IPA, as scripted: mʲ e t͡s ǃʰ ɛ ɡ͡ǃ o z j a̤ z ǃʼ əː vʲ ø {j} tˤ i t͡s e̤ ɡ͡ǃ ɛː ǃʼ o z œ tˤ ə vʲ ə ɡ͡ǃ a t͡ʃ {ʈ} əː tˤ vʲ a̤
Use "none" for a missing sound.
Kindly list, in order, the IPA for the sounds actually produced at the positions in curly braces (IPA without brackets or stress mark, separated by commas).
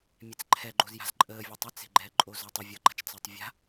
none, t͡s